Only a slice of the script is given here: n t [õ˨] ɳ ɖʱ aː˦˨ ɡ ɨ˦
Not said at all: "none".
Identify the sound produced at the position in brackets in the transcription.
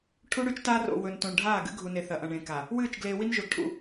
õ˨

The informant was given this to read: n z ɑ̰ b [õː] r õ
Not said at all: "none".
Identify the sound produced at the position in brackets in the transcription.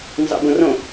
õ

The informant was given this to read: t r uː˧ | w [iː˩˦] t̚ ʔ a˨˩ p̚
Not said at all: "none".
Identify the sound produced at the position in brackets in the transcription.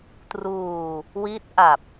iː˦˥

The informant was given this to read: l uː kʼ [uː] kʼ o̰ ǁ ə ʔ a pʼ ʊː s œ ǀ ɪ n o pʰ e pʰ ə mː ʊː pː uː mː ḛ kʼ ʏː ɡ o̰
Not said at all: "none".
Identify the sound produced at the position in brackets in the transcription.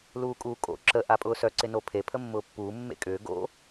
uː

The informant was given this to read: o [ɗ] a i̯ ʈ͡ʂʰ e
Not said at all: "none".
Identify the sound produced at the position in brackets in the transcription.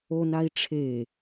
n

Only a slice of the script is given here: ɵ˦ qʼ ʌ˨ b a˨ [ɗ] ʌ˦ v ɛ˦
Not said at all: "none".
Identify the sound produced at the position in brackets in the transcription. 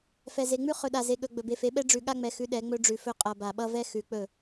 ɓ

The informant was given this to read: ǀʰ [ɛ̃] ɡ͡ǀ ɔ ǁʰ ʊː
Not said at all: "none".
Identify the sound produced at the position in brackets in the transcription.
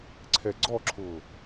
ɛ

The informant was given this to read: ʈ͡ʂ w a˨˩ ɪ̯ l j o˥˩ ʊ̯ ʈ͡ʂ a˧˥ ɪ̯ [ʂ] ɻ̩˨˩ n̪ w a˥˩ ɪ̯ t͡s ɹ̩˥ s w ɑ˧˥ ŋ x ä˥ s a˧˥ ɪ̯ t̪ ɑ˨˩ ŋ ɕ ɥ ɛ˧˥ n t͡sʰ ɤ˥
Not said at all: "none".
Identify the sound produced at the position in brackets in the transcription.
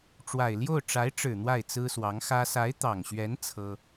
ʈ͡ʂ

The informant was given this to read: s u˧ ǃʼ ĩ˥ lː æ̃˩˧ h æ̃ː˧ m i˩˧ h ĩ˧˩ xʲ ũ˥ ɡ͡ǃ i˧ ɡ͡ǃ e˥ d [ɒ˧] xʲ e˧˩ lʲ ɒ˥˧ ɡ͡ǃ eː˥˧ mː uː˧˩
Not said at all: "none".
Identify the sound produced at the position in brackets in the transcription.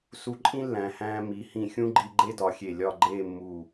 ɒ˩˧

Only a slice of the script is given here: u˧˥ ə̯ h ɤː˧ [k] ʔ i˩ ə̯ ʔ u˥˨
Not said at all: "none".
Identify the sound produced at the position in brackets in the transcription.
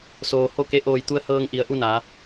ŋ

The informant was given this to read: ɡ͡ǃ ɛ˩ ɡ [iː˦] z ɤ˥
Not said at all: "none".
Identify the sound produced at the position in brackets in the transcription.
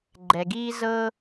iː˦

